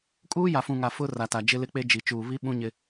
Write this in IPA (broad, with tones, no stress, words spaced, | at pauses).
kʼuː˦ja˨fũ˨ ŋa˨ fʊ˦ ra˨ta˨ d͡ʒɪ˦lɪ˦k͡pe˦ d͡ʒi˨t͡ʃuː˨βi˦ ɓũ˦ɲɪ˦